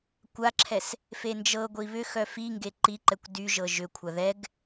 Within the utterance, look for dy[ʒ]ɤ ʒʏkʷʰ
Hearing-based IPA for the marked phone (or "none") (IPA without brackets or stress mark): ʒ